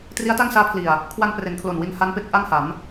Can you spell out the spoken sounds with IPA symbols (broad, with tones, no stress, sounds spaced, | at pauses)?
t r i˦˥ a̯ t a˥˩ ŋ s aː˦˥ pʰ l i˨˩ a̯ | kʰ w a˧ n p r e˩˦ n kʰ l o˨˩ n w i˧ n h a˦˥ n p e˦˥ k̚ ʔ a˥˩ ŋ h a˩˦ m